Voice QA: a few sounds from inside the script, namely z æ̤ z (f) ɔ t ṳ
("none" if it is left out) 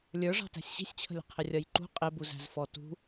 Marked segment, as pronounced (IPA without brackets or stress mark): f